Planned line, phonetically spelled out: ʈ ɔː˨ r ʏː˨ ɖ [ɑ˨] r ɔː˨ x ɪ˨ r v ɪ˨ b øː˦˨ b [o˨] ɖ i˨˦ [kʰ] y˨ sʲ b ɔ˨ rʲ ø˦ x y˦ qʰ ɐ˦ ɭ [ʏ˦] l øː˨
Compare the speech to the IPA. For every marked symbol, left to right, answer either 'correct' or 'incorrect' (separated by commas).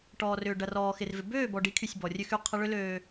incorrect, incorrect, correct, correct